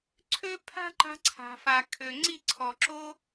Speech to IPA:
ǀʰ ø˦ pʰ a̤˦ ǃ a̤˧ ǀʰ a̤˨ f a˨ kʰ ø˨ ŋ͡ǀ i˦˨ ǀʰ ɔ˨ ǁ o˦

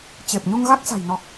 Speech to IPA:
t͡ɕ e˨˩ p̚ ɲ u˧ ŋ ɣ a˦˥ k̚ s a̤˨˩ j n ɔ˨˩ k̚

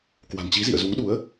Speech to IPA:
k w a̤˨˩ n t͡ɕ i˨˦ z ḭ˧˨ ə̯ z u˨˦ ŋ ɗ u˨˦ ə̯

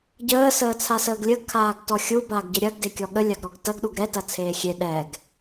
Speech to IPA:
ɟ əː s əː t͡sʰ a s əː ɡ lʲ ə ɡ kʰ aː ɡ t ɔ xʲ u b a ɡ ɟ ə ɾʲ ɐ ɡ d e kʲ ɔ ɠ ə lʲ a ɡ ɾ ɔ ɡ t ɐ ɡ ɗ u ɡ ɾ ɛ t ɐ t͡sʰ eː xʲ e ɗ ɛ ɡ

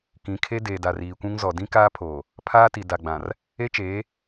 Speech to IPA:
k ĩ˨˦ kʰ e˦ d eː˨ d a˨ r iː˨ kʷ ũ˦ ŋ z ɔ˨ d ĩ˦ k aː˦ pʰ oː˨ | pʰ aː˦ t i˨ d a˨ ɡ͡b ã˨ r | e˦ t͡ʃ eː˨˦

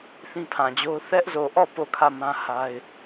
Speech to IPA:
θ ĩ˦ pʰ ã˨ d͡ʑ o˦ ʊ̯ θ ɛ˦ ʔ z o˨ ʔ ɔ˦˨ p o˦˨ kʰ ä˦˨ m ã˦ h a˦ ɪ̯

